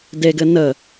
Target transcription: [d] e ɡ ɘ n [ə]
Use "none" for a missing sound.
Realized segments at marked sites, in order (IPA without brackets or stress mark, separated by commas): d, ə